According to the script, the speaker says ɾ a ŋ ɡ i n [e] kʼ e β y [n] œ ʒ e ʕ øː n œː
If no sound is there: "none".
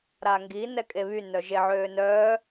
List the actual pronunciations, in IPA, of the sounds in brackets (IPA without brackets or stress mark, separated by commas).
ɛ, n